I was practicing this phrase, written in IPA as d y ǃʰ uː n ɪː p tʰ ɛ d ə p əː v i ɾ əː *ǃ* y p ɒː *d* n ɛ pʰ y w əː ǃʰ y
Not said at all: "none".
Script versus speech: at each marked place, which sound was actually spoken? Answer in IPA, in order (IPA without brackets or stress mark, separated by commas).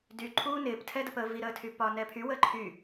tʰ, none